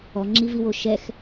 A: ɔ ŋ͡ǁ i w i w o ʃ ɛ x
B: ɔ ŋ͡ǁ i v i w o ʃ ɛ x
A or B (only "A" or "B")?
B